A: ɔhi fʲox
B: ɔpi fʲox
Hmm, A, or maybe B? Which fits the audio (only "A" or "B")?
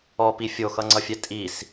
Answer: B